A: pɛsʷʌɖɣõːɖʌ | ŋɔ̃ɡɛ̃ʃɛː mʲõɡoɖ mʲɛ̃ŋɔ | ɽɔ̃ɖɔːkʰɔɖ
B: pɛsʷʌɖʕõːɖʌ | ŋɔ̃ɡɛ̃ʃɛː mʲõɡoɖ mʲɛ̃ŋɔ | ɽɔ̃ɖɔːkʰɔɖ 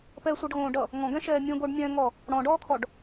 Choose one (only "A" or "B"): A